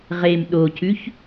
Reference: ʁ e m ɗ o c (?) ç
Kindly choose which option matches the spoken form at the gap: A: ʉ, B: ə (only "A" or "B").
A